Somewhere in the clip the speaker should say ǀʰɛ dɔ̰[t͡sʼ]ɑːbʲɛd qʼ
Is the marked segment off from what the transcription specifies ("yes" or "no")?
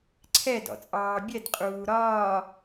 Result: no